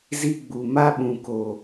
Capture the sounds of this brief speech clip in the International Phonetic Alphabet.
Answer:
z i˦ ɡ͡b u˨ m a˦ ɓ ũ˨ k o˨

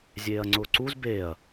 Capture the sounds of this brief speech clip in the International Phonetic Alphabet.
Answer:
zʲ eː ɐ̯ ŋ͡ǀ ʊː ǀ u z b eː ɐ̯

